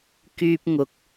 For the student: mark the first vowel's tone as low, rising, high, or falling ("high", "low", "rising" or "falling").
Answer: high